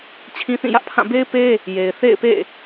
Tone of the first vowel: high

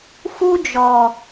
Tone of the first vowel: high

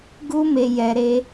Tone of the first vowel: high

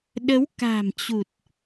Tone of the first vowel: rising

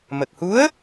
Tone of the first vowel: low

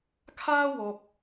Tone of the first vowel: high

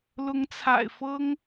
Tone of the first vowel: rising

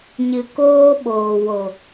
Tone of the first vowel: low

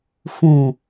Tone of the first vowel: low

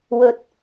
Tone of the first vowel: rising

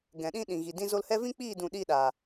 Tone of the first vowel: low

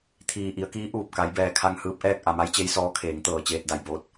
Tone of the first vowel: low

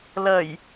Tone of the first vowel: low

